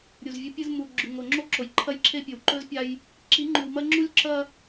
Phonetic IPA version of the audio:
ɾʲ u˨ z vʲ ɵ˦ pʲ ɨ˦ z m u˨ ɡ͡ǁ ʉ˨ ŋ o˨ ŋ͡ǁ o˦ ǁ o˨ j ǃʰ ɐ˦ j ǁʰ e˦ pʲ ɵ˨ w ǃ ɵ˦ z pʲ a˦ j | ǁ i˨˦ ŋ͡ǃ ʉ˨ w m ɐ˦ ŋ͡ǁ u˦ lʲ ǁ ɐ˦

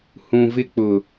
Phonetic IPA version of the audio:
h ũ˨ v ɪ˦ k͡p ʊ˨

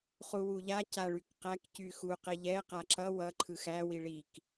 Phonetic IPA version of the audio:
χ u w u ʎ a c a ɭ y k q æ k c y x u q e ʎ ɛ q a ǁ ʌ w ʌ ǃʰ ɯ x æ w i ɭ i k

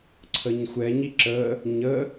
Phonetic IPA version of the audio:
ǀʰ ə ɲ xʷ ɛ ɲ i ǁ ə | ɲ ə

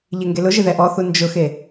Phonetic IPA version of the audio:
ʎ e ŋ ɡ e l ʊ ʒ ɪ ð ɛ ʔ ɔ θ u n d͡ʒ ʊ x e

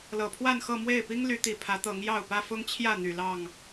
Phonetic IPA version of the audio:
l ɤ˨˩ pʰ w a˥˨ n x ɤ˥˨ m w e˥˨ ɪ̯ p i˦ ŋ l y˨˦ t̪ i˨˩ pʰ ä˨˦ t̪ ɤ˨˦ ŋ j ɑ˥˨ ʊ̯ p ä˦ f ʊ˦ ŋ t͡ɕʰ j ä˥˨ n̪ y˨˩ l ɑ˥˨ ŋ

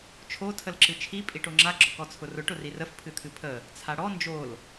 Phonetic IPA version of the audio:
t͡ʃʰ o tʰ ə l ǁ ɨ t͡ʃʰ i pʼ i ʈ o ŋ͡ǁ a ɡ͡ǁ ɔ k ɔ t͡sʰ ʊ r ʊ ʈ ʊ r i r ə f pʰ ɨ t̪ʰ ɨ pʰ ə | t͡sʰ a ɽ ɔ n d͡ʒ o l

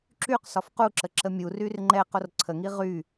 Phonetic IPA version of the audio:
ǁ y q s ɒ f q u ǁ ə ǁ ə mʲ u r y r ŋ͡ǃ ɛ q o r ǀʰ ə ŋ i ʁ y

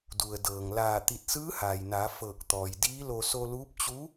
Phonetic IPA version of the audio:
d u˩ ə̯ d ɤː˩ ŋ l aː˧˩ t̪ i˧˩ t̚ s ɯː˧˥ h aː˩ j n aː˩˧ f ɤː˧˩ k̚ t̪ ɔː˩ j d iː˧˥ l o˧ s o˧ l uː˧˥ p̚ t͡ɕ u˧˥

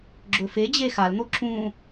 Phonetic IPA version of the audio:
ɡ͡ǁ ɵ f e d͡ʑ e x a l n̪ o ǁ ũ

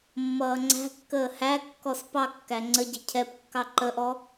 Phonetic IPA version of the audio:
mː ʌː ŋ͡ǀ æ̤ kː əː h æ kː ɔ s p ɑ kː æ ŋ͡ǀ ə ɟ ɪ cʰ ɛ p kː ɑ ǃ ə ʔ ɔ

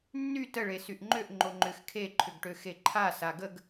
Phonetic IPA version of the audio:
nː y t ə ɭ e s y ʔ ŋ͡ǃ ø ʔ ŋ͡ǃ o ŋ͡ǃ ʏ x kʰ e ǃʰ ʏ ɡ ʈ ø x e ǃʰ a s a ɡ ə ɡ

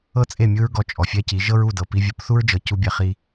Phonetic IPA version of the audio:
ɤ˦ t͡sʼ e˦˨ mʲ ɯ˦ ɹ ɡ ɔ˧ t͡ʃʼ ɔ˨ fʲ ɛ˦ c i˨˦ ʒ ɤ˦ ɹ u˦˨ d ɤ˨ p i˧ vʲ u˨˦ p θ u˦ ɹ d͡ʒ ɤ˨ c u˧ bʲ ɛ˨ χ i˧

